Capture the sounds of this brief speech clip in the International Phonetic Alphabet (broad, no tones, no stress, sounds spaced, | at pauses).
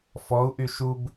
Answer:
f ɔ u̯ ʔ y ʃ u b